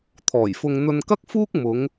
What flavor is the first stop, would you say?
aspirated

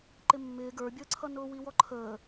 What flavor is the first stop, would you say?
click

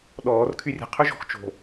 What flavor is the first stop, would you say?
implosive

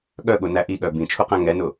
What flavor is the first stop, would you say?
implosive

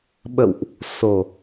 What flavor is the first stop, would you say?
implosive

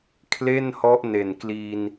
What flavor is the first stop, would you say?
aspirated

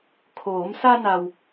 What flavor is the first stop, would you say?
aspirated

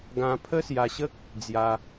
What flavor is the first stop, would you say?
plain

